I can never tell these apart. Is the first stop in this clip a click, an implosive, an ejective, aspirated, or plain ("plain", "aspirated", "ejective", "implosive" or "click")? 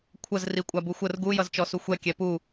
aspirated